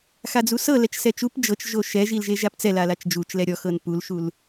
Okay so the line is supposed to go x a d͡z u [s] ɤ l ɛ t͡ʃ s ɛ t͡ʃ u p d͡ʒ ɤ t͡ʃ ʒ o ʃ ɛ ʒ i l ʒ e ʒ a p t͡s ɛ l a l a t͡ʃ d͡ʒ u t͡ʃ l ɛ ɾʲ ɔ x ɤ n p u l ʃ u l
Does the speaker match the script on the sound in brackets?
yes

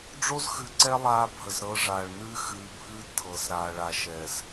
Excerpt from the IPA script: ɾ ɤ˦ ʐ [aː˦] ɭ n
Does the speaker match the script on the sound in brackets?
no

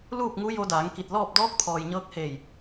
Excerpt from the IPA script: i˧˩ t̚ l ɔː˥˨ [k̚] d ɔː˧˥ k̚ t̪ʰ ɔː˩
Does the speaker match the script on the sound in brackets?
no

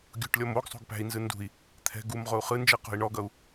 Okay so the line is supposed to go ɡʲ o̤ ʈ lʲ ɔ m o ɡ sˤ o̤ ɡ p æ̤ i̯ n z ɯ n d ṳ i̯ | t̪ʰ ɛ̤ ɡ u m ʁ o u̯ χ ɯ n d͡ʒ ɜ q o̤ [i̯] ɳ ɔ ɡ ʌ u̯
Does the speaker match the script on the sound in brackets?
yes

